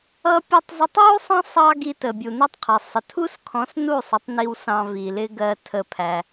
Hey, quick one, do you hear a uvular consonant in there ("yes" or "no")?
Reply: yes